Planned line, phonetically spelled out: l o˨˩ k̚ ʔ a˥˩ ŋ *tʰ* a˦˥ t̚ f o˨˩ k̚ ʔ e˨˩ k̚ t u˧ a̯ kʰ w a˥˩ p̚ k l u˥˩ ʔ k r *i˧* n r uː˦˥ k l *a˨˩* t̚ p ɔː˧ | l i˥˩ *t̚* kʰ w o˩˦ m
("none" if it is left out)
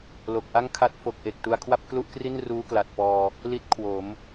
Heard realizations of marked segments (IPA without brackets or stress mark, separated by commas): kʰ, i˥˩, a˨˩, t̚